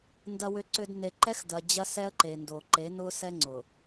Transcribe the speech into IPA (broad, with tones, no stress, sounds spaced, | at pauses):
n d ɐ˨ w ʏ˨ ǀ ʏ˨ d n e˨ ǃ ɛ˦ x d ɐ˨ d͡ʑ ɐ˦ s ɛ˦ ə̯ ǃ e˨ n d o˨ ǃ e˨˦ n ʊ˦ s ɛ˦ ŋ͡ǀ ʊ˨